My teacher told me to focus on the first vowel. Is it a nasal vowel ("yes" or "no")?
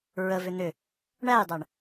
no